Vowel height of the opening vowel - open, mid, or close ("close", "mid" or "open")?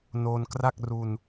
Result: mid